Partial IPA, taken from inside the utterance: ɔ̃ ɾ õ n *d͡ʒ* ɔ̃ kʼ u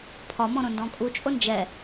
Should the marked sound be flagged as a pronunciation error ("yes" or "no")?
yes